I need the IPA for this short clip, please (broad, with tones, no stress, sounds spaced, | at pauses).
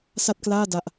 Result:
s a˥˩ t̚ k l aː˥˩ d a˥˩ ʔ